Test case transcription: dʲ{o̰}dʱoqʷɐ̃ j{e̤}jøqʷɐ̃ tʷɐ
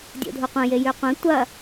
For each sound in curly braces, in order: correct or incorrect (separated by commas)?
correct, incorrect